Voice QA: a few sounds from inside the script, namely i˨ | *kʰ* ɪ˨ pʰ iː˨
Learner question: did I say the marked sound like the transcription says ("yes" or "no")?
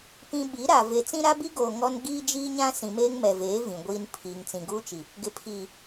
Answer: no